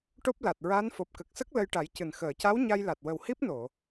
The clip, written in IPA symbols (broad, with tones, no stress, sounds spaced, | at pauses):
ʈ o˦˥ p̚ l a˨˩ t̚ ɹ a˧˥ n f o˨˩ p̚ k ə˨˩ k̚ s ə˦˥ k̚ l ə˧ j ʈ a˨˩˦ j c ɨ˨˩ n x əː˨˩˨ c a˧˥ w ɲ a˧ j l a˨˩ t̚ w ə˨˩ w h i˦˥ p̚ n o˨˩˨